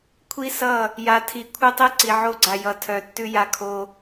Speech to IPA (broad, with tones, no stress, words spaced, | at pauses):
kʷʰi˦sʌ˦˨ | ja˨tʰi˨ kʷʰʌ˦tˤɛ˦ ǀi˨ʕo˦ɡ͡ǀa˨ jʌ˨tʰœ˨ tːʉ˦ja˦kʰo˦